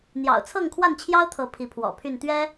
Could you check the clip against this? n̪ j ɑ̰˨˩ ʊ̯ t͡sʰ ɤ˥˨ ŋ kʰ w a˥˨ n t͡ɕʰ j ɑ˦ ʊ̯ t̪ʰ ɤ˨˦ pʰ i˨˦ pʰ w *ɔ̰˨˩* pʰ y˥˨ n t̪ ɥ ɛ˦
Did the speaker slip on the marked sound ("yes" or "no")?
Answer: no